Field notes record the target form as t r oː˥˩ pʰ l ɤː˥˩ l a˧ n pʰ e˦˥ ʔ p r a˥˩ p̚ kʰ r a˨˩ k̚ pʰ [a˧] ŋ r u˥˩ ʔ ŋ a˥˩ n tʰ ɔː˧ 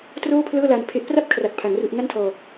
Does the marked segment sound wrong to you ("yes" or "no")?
yes